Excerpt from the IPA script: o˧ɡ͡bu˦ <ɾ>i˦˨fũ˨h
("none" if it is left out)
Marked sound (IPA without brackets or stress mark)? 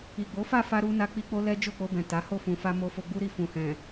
ɾ